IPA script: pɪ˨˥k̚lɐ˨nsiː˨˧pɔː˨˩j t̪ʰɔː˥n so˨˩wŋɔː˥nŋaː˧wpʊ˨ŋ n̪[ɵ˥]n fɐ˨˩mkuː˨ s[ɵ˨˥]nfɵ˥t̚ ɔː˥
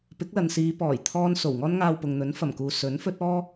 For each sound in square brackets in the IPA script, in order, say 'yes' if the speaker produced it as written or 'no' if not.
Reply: no, yes

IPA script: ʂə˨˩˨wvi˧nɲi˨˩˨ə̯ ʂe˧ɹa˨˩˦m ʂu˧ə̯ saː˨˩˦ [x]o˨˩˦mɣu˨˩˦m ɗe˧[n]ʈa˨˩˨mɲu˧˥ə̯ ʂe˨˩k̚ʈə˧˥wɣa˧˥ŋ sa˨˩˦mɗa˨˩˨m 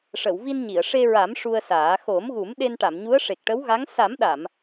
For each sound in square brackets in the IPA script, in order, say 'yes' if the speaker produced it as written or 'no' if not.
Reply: yes, yes

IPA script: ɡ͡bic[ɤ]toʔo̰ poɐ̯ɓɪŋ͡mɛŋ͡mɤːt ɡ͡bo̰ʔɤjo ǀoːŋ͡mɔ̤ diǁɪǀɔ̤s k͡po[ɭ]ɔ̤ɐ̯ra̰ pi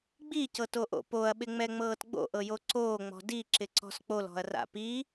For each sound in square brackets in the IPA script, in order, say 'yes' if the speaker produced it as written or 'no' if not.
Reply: yes, no

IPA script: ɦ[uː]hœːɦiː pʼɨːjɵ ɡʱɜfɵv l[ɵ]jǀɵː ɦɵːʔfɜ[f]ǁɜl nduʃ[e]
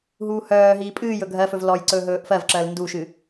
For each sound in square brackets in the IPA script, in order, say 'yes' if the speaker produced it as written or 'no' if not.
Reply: yes, no, no, no

